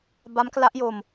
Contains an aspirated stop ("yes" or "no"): no